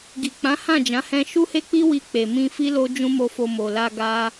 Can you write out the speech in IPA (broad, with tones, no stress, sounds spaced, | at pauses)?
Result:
ɡ i˨ k͡p ã˨˦ h ã˦˨ d͡ʒ ã˨˦ h ɛ̃˧ ʃ u˦ h e˦ k͡p i˦ w i˧ k͡p e˨ m ĩ˧ f i˦ l o˦ d͡ʒ ũ˦ m o˧ f o˧ m o˨ l a˧ ɡ a˦